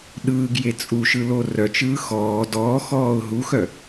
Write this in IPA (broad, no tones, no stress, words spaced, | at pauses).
ɗɯːɡje t͡sʼuʃɯlo rœt͡ʃɯː xɔː dɔːxɔːʊ̯ ɦuxœ